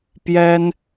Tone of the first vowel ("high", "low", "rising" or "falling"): high